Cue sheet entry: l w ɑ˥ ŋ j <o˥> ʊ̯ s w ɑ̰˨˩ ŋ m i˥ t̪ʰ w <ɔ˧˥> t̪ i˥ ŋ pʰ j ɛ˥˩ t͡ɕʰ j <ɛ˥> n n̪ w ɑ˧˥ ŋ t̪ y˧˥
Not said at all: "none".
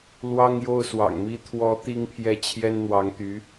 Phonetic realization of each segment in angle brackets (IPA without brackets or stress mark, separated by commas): o˥˩, ɔ˧˥, ɛ˥